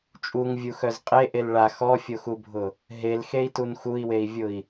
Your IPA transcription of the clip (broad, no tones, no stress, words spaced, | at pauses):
t͡ʃʼuŋvʲuxœz qʼeʔel ɭa xɔfʲoxubʱʊ | ɦelxei̯tun xui̯wei̯vʲʊi̯